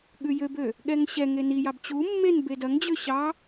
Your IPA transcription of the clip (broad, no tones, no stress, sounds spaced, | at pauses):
ɠ ʉ j ø b ø | ɠ ɛ ŋ ɕ ɛ ŋ e n i j ɑ b t͡ɕ u mː e n b e d ɐ ŋ d͡ʑ ø ɕ ɑ